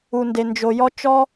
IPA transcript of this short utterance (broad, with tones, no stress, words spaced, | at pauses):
u˩nde˩nd͡ʒo˩jɔ˧ t͡ʃɔ˧